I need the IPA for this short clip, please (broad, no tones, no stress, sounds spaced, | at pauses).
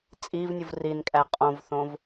t͡sʼ i v nʲ u v r i n kʼ æ qʼ õ v θ õ v